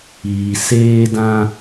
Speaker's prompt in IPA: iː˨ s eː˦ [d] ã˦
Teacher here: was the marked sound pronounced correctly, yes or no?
yes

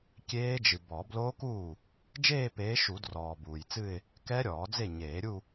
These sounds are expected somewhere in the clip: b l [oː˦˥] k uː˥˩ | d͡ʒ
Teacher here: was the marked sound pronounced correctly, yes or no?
yes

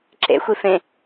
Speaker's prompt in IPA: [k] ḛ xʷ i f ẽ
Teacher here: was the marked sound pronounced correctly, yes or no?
no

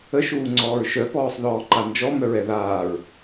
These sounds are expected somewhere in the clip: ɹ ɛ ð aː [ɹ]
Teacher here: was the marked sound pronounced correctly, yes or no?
yes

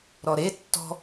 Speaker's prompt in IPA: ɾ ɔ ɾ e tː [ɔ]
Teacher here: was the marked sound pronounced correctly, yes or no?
no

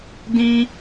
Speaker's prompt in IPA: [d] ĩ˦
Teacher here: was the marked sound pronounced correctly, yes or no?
yes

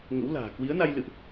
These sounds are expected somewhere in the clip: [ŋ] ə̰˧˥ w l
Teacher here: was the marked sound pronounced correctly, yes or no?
yes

